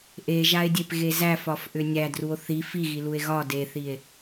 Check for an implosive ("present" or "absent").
absent